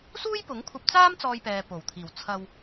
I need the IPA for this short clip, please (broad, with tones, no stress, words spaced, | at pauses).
suː˥jpʊ˨˥ŋkʷʰɐ˧p̚t͡saː˥m t͡sɔː˧jpɛː˨po˨˩wt̪ʰiː˨˩w t͡sʰɐ˧w